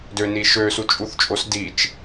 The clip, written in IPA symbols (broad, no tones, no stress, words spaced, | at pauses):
døni ʃøsut͡ʃʼuθt͡ʃʼos dit͡ʃ